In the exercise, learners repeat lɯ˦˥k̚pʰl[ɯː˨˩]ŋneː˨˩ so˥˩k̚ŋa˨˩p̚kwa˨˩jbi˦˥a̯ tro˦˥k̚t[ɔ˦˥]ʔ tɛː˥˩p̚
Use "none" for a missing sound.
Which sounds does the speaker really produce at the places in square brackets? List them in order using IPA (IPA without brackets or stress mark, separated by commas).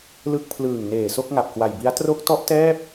ɯː˨˩, ɔ˦˥